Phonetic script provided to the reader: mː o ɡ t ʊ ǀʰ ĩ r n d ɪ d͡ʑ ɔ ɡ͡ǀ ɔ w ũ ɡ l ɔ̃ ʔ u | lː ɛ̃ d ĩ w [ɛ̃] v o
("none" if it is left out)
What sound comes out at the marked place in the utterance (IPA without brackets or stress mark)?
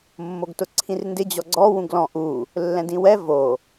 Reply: ɛ